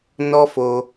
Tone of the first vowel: high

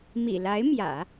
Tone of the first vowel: low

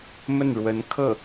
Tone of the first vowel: falling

